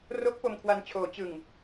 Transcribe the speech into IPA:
r o˦˥ k̚ p o˧ m kʰ w a˧ n t͡ɕʰ oː˩˦ t͡ɕ ɯ˨˩ ŋ

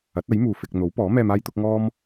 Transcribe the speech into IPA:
ɐ˨˥ t̚ ɐ˨˥ j m uː˨ f ɪ˧ k̚ n̪ o˨˥ w p ɔː˨˥ m ɛː˧ m aː˥ j t̪ ʊ˨˥ k̚ ŋ ɔː˥ m

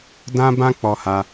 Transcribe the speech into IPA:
d ã˦ b ã˦ k͡p ɔ˦ h a˦

